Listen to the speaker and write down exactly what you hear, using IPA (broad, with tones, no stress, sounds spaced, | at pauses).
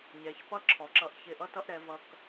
ɲ ɛ˩˧ ç p ʌ˥ ǁʰ ɔ˩˧ ǁ ʌ˥˧ ʔ ç ɪ˧˩ ʔ ʌ˥ t ʌ˥ ʔ ɾ ɛ˩˧ v ʌ˧ k